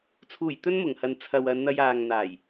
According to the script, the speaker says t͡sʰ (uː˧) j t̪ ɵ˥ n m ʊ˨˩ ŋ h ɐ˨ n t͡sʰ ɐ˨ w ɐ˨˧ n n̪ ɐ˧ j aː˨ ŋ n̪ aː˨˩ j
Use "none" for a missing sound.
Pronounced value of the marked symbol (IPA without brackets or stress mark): uː˨˩